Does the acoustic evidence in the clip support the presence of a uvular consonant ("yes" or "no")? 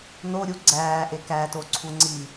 no